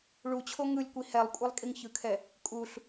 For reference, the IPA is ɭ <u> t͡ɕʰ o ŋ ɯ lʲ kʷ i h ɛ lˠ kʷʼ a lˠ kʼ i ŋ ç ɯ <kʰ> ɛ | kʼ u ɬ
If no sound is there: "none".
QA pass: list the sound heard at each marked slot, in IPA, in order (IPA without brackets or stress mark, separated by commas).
u, kʰ